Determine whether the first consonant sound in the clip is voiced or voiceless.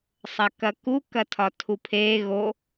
voiceless